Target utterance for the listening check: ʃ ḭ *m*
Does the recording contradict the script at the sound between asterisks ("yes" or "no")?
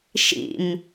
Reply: no